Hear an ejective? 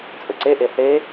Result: yes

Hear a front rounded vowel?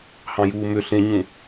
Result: yes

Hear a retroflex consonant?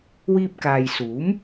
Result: no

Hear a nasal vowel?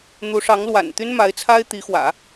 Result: no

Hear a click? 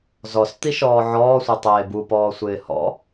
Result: no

